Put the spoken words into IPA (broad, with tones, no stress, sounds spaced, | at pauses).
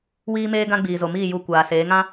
w iː˦ m eː˦ ɡ ã˦ ɡ͡b iː˨ z o˨ m iː˦˨ j u˧ kʷ aː˨ s eː˨˦ ŋ ã˦